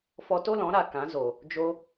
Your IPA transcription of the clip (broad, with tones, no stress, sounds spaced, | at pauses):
f ɔ˧ t o˦ l ɔ̃˨˦ ɾ a˨ k ã˨˦ z o˨ | d͡ʒ o˧